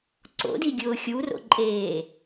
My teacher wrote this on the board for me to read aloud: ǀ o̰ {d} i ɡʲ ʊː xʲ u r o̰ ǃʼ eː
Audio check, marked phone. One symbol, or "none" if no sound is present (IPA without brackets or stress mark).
d